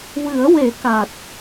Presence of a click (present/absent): absent